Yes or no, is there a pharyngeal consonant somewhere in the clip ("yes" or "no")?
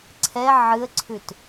yes